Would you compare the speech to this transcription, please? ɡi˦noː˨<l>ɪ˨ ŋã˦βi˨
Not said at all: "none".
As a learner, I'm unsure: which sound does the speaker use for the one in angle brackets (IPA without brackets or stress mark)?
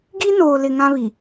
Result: l